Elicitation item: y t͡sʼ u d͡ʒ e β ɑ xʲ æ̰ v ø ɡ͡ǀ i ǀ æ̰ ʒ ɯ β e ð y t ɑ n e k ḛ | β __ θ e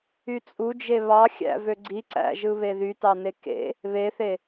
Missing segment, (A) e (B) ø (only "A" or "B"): A